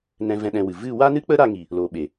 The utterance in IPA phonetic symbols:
n ɛ̃˧ v ɛ̃˧ ɗ ɛ̃˧ w ɨ˨ v ɨ˦˨ w a˦ n ɨ˦ k͡p ə˦ ɾ a˧ ŋ i˨ | l oː˨ ɓ e˨

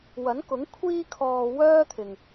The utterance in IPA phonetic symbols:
w ɐ˨˥ n k ʊ˨˥ ŋ kʷʰ iː˧ kʰ ɔː˨ w œː˥ t̪ʰ ɪ˨ ŋ

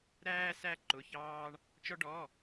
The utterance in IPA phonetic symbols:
ɾ æː˧ s æ˧ ǃ ʊ˩˧˩ ç ɑː˧ ɳ | t͡ʃ ɔ˧ ɖ ɔ˩˧˩

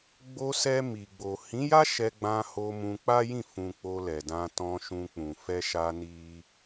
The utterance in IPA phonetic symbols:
ɡ͡b o˧ s ɛ˧ m i˨ ɡ͡b o˨ h ĩ˨˦ j a˦ ʃ ɛ˧ ɡ͡b ã˧ h o˧ m ũ˧ k͡p a˦ j ĩ˦˨ f ũ˧ k͡p o˧ l ɛ˨ d ã˧ t ɔ̃˧ ʃ ũ˧ k͡p ũ˨ f ɛ˧ ʃ a˧ n i˦

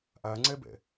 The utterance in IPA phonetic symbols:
ʔ a ŋ͡ǀ ɛ b ɛ̰

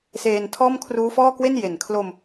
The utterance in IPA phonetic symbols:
s eː˧ n tʰ ɔː˥˩ m kʰ r uː˦˥ f ɔː˥˩ k w e˥˩ n j e˩˦ n kʰ l o˧ m

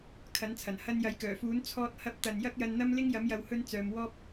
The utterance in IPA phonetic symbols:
kʰ ɐ˨˥ n t͡sʰ ɐ˨˩ n h ɐ˧ n j ɐ˨˥ j k œː˨˩ f uː˨˥ n t͡sʰ ɔː˧ t̚ h ɐ˧ p̚ t̪ ɐ˨ n j ɐ˥ k̚ j ɐ˧ n n̪ ɐ˥ m l ɪ˥ ŋ j ɐ˨˥ m j ɐ˨ w h ɵ˧ n t͡s œː˧ m w ɔː˥ p̚

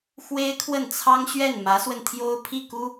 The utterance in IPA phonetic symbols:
x w e˥ ɪ̯ kʰ w ə˥˩ n t͡sʰ ɑ˥ ŋ ɕ ɥ ɛ˥˩ n m ä˧˥ s w ə˧ n t̪ʰ j o˥ ʊ̯ pʰ i˥˩ k u˥

